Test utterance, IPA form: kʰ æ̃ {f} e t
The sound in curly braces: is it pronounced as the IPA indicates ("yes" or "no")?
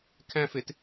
yes